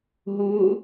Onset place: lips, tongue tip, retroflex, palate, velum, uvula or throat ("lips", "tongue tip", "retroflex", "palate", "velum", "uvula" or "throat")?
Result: throat